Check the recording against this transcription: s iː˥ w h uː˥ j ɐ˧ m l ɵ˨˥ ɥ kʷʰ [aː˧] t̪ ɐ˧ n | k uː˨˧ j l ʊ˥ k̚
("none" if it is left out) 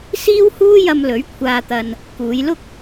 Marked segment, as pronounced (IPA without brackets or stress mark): aː˧